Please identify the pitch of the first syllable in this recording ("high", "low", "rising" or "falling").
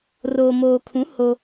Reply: low